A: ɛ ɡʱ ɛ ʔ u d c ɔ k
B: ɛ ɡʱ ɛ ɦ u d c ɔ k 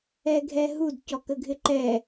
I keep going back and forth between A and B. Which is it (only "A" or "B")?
B